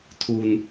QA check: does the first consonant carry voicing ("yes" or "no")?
no